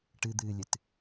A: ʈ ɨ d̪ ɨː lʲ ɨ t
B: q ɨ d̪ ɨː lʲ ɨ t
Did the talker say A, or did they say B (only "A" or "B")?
A